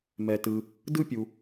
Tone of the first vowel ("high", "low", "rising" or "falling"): low